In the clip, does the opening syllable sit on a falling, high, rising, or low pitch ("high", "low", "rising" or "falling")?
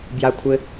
low